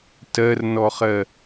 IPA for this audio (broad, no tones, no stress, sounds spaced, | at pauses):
t ɜ r n ɔ χ ɜ